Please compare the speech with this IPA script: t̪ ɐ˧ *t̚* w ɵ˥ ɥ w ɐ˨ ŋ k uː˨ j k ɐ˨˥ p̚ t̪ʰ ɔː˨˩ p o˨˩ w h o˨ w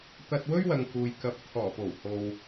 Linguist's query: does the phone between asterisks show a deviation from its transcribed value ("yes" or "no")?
no